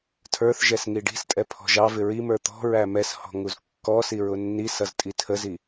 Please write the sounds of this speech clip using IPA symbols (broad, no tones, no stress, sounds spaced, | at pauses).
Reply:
tʰ ə˞ θ ʒ ɛ s ŋ i ɖ i̤ s tʼ ɛ pʰ ɔ̤ ʒ ɑ v ɪ ɹ i m ə˞ t̪ ɔ̤ ɹ æ m ɛ s h ɔ̤ ŋ u z kː ɔ s i ɹ ʊ nː i s ʌ z tʼ i tʰ ə z i